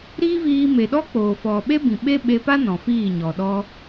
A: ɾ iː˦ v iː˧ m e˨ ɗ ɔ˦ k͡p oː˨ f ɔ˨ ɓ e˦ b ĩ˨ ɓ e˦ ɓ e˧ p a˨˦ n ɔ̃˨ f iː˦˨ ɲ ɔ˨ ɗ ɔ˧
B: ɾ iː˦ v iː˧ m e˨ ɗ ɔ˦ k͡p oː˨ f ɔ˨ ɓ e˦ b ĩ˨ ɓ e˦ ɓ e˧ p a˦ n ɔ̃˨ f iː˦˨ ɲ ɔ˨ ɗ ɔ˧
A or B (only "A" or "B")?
B